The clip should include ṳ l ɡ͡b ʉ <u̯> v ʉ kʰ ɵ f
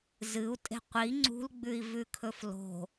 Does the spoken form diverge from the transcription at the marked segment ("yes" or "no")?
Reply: yes